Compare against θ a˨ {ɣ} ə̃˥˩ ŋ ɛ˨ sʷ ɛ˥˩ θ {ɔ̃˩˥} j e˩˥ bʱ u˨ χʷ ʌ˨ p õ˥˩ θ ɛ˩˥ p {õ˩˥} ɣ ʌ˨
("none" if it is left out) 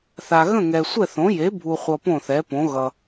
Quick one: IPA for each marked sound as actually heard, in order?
ɣ, õ˩˥, õ˩˥

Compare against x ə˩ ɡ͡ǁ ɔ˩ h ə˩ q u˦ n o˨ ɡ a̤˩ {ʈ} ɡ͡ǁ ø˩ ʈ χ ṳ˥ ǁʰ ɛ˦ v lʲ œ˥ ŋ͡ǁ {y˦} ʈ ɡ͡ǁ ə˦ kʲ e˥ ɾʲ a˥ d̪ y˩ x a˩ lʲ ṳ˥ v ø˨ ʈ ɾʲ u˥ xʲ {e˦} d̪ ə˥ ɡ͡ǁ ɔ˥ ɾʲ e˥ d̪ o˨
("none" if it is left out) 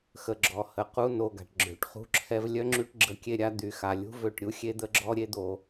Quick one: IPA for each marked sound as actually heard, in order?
ʈ, y˦, e˥

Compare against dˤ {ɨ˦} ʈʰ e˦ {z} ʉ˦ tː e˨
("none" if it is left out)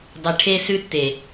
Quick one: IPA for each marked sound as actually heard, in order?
ɨ˨, s

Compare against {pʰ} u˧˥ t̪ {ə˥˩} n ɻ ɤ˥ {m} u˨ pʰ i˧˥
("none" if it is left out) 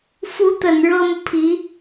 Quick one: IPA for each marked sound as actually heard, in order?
f, ə˨˩, m

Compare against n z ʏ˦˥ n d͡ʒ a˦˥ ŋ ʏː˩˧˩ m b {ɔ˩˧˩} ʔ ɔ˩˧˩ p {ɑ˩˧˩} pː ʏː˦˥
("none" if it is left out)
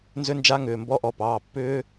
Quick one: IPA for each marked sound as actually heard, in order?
ɔ˦˥, ɑː˩˧˩

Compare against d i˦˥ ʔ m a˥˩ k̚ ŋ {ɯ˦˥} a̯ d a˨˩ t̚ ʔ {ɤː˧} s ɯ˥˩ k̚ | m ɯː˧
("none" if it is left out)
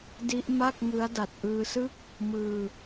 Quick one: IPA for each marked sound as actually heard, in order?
ɯ˦˥, ɯː˧

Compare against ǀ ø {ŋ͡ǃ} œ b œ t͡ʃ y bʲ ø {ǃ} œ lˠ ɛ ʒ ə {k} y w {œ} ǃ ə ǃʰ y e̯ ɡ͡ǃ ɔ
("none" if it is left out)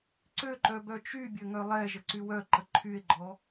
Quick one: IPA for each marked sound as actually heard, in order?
ǃ, ŋ, ǀ, œ

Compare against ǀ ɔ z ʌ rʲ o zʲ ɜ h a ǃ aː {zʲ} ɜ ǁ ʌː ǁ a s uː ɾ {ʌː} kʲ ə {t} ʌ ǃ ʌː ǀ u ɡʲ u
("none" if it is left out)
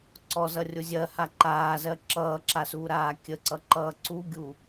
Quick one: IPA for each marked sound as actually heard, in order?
z, aː, ǀ

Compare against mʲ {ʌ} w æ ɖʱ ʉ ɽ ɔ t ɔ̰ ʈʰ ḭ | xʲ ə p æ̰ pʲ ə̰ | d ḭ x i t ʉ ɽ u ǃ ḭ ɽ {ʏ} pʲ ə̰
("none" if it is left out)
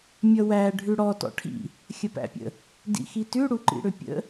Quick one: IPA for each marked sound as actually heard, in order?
ʌ, ʏ

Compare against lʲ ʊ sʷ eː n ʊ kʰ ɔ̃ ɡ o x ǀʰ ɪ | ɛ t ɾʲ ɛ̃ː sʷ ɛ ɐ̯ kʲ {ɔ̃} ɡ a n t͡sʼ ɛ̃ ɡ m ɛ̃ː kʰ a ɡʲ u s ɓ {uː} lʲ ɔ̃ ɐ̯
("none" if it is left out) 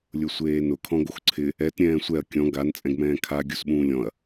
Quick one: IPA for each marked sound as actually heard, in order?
ɔ̃, ũː

